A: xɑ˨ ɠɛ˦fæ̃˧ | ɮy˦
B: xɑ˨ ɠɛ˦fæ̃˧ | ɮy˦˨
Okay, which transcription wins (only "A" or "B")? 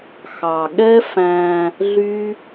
A